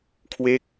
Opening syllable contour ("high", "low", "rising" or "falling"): falling